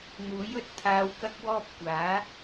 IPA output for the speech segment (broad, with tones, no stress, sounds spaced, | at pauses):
n̪ uː˨˥ j ɵ˧ t̚ t̪ʰ aː˧ w k ɐ˥ k̚ w ɔː˥ p̚ kʷ aː˨˥